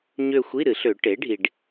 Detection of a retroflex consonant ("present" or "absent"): present